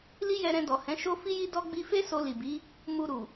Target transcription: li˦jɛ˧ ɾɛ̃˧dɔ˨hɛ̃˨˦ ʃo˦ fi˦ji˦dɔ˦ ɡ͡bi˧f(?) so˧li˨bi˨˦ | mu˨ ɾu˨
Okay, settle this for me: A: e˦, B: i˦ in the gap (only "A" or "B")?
A